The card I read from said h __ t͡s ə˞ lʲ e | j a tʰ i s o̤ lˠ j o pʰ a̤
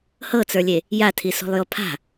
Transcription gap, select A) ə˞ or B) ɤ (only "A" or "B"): B